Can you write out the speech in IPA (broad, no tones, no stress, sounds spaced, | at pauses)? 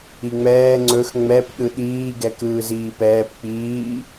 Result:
i ŋ͡m ɛː ŋ͡ǀ ɵ x ŋ͡m ɛ p ɗ ɯ ɗ iː ɡ ɛ k ɯː z iː p ɛː p k͡p iː